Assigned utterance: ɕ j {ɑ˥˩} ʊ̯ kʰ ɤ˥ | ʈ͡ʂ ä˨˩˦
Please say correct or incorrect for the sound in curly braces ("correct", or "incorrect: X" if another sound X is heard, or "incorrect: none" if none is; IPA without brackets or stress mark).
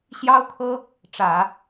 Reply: incorrect: ɑ˥